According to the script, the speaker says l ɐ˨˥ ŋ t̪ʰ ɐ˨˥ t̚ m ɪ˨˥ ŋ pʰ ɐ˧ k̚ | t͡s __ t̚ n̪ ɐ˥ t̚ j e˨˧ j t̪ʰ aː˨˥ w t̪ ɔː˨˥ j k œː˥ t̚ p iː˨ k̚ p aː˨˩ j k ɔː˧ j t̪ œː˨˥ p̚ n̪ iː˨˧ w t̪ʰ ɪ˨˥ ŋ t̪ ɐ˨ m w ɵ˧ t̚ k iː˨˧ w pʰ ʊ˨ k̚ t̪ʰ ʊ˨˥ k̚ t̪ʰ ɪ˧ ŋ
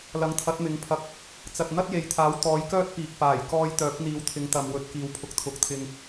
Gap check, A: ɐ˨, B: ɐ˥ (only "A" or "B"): A